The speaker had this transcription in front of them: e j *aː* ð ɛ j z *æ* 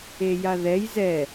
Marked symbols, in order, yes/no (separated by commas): no, no